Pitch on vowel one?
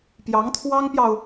rising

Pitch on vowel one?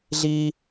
high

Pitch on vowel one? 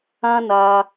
high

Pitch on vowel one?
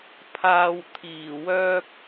low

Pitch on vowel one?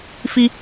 high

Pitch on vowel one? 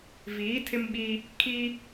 rising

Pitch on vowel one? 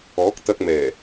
rising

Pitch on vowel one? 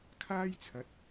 high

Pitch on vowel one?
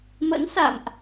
rising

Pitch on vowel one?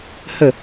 falling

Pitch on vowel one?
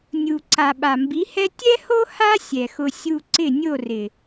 low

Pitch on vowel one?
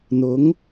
rising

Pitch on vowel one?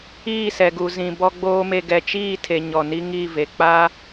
falling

